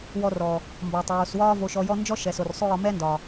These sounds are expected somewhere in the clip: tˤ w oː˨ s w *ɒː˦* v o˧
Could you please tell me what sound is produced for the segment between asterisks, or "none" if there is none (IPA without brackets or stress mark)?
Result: ɒː˦